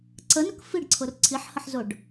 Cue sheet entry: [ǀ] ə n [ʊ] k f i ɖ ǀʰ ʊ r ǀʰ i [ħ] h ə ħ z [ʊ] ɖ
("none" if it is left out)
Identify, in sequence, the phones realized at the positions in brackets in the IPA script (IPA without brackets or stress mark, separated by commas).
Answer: ǀ, ʊ, ħ, ʊ